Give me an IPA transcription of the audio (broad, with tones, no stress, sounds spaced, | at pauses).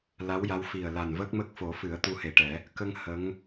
l a˧˥ w j a˧˥ w f i˨˩ ə̯ l a˨˩ n v əː˦˥ k̚ m ə˦˥ k̚ f o˨˩˦ f ɨ˨˩˦ ə̯ t̪ u˧ h e˨˩ ʈ ɛ˨˩˦ | k ə˧ ŋ h ə˧˥ ŋ